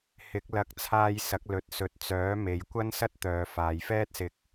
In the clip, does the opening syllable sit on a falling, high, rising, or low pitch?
rising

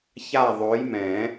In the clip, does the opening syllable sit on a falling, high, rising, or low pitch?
falling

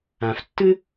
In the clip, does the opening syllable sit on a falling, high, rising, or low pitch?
low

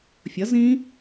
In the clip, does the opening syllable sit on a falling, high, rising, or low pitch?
rising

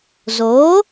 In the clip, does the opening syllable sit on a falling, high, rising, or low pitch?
rising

